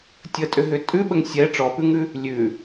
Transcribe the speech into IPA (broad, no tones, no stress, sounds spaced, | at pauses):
tʲ ə tʼ ʏ ɦ ʏ tʼ ʉ ɓ ə ŋ sʲ ɛ ʈ͡ʂ ɔ p ʉ ŋ ʉ | lʲ ʉ